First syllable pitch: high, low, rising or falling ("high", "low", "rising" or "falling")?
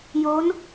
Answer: rising